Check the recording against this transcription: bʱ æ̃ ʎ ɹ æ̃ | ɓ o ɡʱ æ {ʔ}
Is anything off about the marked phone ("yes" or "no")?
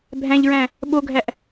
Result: no